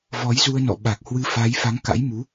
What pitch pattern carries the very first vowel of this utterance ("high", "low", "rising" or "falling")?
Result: rising